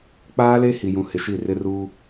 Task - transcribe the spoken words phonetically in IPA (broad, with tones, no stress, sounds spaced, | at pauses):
k͡p aː˦ l e˦ h i˨ j ũ˨ h ɪ˨ ʃ i˦˨ r ɪ˦ r uː˦